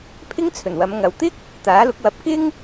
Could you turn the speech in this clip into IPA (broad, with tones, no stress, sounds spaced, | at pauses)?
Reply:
pʰ ɪ˥ ŋ t͡sʰ ɵ˨˩ n w ɐ˨˧ m ŋ ɐ˨ w t̪ ɪ˥ k̚ | t̪ aː˨˥ l ʊ˨˥ k̚ w ɐ˨˥ p̚ k ɪ˥ ŋ